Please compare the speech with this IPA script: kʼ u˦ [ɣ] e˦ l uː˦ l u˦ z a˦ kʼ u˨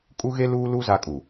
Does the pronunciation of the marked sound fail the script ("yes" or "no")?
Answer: no